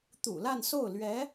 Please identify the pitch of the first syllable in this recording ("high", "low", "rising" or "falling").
low